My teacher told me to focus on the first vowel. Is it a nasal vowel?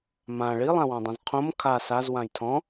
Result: yes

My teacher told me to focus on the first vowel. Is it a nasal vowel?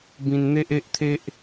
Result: yes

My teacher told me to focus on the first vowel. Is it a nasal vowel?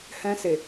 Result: yes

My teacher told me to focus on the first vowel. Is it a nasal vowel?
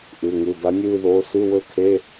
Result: no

